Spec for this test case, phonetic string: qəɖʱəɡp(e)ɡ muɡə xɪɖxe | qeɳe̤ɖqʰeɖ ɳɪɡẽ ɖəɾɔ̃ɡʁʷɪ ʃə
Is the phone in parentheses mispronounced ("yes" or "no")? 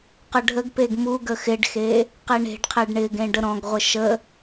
no